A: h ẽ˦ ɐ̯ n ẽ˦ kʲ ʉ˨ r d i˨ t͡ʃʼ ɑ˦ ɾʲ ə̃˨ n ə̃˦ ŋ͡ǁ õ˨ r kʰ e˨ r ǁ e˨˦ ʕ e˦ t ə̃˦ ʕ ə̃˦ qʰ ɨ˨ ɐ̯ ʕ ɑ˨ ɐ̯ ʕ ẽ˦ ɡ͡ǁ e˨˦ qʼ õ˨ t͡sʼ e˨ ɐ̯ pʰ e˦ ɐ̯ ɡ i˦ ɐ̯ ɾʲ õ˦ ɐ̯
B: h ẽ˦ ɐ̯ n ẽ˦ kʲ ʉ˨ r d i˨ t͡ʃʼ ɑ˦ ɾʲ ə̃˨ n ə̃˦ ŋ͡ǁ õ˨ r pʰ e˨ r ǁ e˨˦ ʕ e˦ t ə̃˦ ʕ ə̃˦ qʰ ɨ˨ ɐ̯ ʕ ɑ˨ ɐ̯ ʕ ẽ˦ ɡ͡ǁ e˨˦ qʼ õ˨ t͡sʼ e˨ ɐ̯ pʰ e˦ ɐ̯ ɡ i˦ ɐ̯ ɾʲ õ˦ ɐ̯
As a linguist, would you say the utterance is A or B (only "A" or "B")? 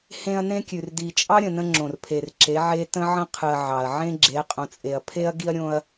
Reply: B